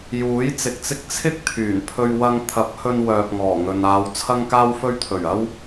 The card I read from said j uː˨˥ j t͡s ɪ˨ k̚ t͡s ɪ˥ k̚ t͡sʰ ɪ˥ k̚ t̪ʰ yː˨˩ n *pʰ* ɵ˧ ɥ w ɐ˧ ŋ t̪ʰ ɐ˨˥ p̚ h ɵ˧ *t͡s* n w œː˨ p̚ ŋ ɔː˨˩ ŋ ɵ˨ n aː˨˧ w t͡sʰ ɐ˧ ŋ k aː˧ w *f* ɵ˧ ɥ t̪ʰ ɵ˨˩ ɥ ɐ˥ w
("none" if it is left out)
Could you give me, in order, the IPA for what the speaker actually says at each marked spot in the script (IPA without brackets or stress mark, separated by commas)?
pʰ, none, f